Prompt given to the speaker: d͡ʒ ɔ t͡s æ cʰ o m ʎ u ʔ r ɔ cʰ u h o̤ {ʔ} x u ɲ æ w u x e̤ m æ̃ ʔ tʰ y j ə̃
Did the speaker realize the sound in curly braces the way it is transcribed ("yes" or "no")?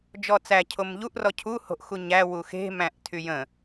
yes